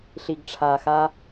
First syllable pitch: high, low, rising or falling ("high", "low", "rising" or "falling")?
low